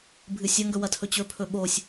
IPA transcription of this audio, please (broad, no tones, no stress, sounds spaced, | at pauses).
bʱ ɨ sʲ ɐ ŋ ɡ ɵ w ɐ tʰ ɵ t͡ɕ ɵ pʰ ɵ ɓ o sʲ